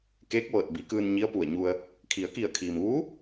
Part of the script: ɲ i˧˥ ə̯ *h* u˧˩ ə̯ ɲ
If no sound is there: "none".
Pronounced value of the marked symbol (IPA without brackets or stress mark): p